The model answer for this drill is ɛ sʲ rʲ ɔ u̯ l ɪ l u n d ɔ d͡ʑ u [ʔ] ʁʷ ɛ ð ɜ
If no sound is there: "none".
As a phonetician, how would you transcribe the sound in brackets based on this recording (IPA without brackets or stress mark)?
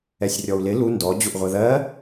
ʔ